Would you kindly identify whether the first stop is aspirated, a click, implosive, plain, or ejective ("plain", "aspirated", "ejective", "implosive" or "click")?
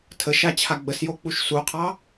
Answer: aspirated